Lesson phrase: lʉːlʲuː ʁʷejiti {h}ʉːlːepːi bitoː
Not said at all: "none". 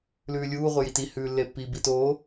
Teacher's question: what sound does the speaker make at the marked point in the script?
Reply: h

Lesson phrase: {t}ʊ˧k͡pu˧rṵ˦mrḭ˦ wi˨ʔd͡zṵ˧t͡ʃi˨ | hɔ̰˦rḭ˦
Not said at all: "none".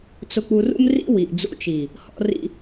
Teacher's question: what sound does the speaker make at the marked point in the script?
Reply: t͡s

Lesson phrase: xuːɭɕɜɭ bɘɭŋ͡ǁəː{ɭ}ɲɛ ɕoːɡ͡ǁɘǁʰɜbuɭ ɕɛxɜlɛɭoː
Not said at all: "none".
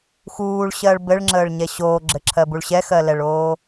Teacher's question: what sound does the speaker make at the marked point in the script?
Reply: ɭ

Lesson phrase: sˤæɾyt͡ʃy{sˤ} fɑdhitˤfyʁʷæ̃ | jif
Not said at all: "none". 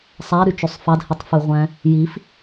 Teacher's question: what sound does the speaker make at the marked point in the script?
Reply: sˤ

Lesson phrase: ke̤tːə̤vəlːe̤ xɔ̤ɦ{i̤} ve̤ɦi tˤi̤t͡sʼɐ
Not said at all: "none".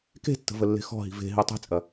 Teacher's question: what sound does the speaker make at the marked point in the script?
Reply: i̤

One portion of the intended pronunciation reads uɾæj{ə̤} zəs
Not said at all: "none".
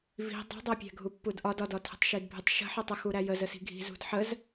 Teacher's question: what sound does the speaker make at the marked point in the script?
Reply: ə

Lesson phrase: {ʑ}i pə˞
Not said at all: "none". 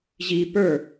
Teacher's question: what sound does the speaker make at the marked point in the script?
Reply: ʑ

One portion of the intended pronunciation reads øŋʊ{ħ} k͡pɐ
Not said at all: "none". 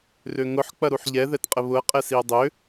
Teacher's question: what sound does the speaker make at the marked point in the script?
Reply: ħ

